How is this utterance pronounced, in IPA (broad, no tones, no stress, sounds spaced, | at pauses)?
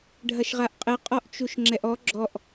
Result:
ɖʱ ɐ ʃ ʁ a ʔ qʼ ɘ qʼ ɔ ʔ t͡ʃ u ʃ ŋ͡ǁ ɛ ʔ ɔ ɡ͡ǁ ɔ ʔ